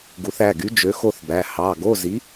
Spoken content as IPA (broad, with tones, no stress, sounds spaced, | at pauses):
ɡ u˩˧ θ æ˩˧˩ ɡ y˨˥ d͡ʒ ø˨˥ x o˥˧ θ b æ˩˧˩ h ɑ˩˧˩ ɡ o˧˥˧ z i˨˥